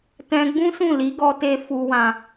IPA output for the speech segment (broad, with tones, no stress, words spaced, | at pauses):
tɛ̃˧ɡ͡bũ˦sũ˦˨ li˨˦ɡɔ˧te˧ fu˧wã˧